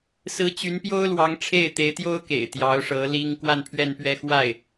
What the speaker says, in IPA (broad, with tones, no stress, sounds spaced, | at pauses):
s ɹ̩˧˥ t͡ɕ y˧˥ n p j o˥ ʊ̯ l w ɑ˧˥ ŋ ʈ͡ʂʰ e˥˩ ɪ̯ t̪ e˧˥ ɪ̯ t̪ j o˥ ʊ̯ k ḛ˨˩ ɪ̯ t̪ j ɑ˧˥ ʊ̯ ʂ ɤ˧˥ l i˥ ŋ k w a˥˧ n pʰ ɥ ɛ˥˧ n p ɥ ɛ˥˧ x w a˥˩ ɪ̯